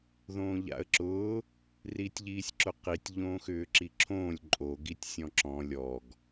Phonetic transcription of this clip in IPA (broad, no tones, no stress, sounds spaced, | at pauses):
ð õː ʎ a̰ ə̯ ǁ ʊː | r iː tʲ ʎ iː sʲ ǁ ʊ q i tʲ ʎ õː x ʏː ǁ i ǁʰ õː lʲ ǃʼ o ɡ i tʲ sʲ ɔ̃ ǁ ɔ̃ lʲ ɔ ɡ